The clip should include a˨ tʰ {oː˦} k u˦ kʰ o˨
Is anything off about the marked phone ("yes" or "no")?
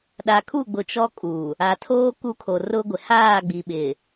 no